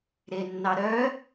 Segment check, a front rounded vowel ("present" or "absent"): present